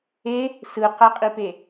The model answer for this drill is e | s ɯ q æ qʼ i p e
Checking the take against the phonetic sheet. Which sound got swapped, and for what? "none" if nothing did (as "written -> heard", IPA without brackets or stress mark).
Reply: none